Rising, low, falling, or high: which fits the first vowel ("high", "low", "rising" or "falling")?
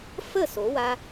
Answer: falling